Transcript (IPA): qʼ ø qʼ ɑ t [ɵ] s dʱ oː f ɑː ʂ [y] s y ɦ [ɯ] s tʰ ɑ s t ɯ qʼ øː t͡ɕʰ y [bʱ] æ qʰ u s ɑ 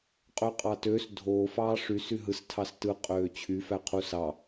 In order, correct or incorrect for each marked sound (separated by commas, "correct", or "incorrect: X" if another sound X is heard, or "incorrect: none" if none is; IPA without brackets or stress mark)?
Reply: incorrect: ø, correct, correct, incorrect: f